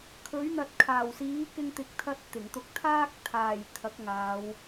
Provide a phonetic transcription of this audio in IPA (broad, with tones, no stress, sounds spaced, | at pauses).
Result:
kʰ ɵ˨˥ ɥ n̪ ɐ˨ t̚ kʰ aː˨˩ w s iː˨˥ k ɪ˧ ŋ t̪ ɪ˨ k̚ t̪ʰ ɐ˧ t̚ t̪ ɪ˨˩ ŋ t̪ ʊ˧ k̚ t̪ʰ aː˥ k̚ t̪ʰ aː˨˩ j t̪ʰ ɐ˨˥ k̚ ŋ aː˨˧ w